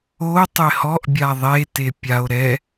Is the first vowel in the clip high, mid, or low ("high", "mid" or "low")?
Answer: mid